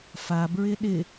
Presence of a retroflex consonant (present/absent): absent